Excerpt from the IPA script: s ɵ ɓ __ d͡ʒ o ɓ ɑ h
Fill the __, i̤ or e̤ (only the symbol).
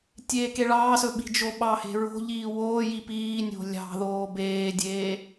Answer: i̤